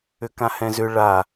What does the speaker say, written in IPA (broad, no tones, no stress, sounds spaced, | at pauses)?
ʏ k ã h ɛ̃ z ʏ ɭ a